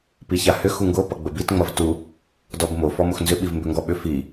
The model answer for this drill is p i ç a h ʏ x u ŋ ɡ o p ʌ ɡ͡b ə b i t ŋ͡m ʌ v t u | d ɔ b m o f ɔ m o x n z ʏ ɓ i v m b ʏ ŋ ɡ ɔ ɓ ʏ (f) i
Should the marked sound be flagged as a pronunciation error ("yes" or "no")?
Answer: no